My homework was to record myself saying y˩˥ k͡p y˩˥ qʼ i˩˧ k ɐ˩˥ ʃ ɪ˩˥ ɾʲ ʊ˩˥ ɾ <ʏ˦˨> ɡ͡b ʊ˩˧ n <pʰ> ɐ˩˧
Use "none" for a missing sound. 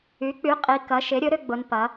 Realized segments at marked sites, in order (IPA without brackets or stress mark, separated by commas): ʏ˦˨, p